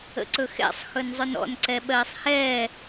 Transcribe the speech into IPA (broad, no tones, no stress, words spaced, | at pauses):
ə̰ǀɵxɛ̰sˤ xɵnzˤɵnɔ̰n ǀɛɓɜːsˤhɛː